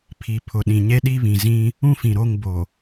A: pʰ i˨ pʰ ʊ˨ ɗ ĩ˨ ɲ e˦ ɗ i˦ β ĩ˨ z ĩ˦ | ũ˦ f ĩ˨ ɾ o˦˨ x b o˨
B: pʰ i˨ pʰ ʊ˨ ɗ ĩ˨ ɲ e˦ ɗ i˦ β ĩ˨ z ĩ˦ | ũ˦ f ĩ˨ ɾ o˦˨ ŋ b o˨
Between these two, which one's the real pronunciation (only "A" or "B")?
B